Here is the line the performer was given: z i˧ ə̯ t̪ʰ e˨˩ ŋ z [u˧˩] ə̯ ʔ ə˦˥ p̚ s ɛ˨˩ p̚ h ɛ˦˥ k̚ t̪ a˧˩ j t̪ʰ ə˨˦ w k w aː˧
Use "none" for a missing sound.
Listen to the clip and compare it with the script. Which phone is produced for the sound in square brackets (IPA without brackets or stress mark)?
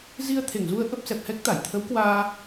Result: u˧